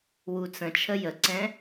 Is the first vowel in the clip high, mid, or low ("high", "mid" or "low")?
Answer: high